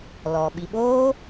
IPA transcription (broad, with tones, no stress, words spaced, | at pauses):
lɔ˨ɓi˧ ɓoː˦